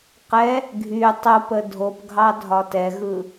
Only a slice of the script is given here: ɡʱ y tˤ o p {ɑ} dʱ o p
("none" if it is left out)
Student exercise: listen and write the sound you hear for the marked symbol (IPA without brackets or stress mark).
ə